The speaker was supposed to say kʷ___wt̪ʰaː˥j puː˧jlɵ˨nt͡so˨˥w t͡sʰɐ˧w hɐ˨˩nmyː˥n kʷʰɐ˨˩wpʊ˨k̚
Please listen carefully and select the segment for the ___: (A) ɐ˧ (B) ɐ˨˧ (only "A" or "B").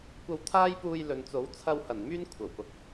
A